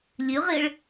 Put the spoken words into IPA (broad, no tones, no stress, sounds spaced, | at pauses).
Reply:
lʲ ʉ ʁ ɪː ɭ